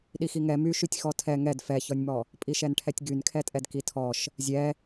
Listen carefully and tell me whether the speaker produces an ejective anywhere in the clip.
yes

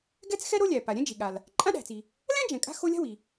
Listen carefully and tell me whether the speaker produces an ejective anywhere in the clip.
yes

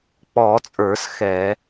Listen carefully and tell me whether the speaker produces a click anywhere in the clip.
no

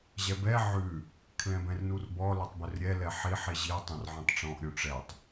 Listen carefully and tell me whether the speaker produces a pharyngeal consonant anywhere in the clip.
yes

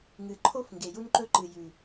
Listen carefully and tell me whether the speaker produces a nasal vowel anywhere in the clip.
no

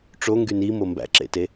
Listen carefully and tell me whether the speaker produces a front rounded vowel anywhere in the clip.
yes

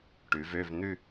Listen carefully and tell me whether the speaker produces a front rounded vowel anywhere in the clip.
yes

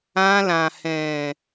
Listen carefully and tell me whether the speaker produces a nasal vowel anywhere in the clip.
yes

